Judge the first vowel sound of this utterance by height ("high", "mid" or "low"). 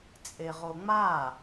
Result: mid